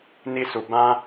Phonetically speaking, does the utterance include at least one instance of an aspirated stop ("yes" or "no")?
no